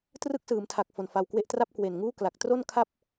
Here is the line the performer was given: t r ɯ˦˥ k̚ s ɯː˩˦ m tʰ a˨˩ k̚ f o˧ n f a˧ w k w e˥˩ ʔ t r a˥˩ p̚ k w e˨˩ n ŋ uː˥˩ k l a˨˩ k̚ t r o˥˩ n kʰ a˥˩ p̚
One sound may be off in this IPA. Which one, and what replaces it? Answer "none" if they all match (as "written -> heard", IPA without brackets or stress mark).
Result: none